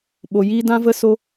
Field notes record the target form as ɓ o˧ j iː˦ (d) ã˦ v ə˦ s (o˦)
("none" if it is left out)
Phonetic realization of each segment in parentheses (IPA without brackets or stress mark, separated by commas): d, o˦